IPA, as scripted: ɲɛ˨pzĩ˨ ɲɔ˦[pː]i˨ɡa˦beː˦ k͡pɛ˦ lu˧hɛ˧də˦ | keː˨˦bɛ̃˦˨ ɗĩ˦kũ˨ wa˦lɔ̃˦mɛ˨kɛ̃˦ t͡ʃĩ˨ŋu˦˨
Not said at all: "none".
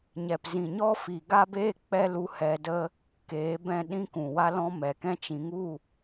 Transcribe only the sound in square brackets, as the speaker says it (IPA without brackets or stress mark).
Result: f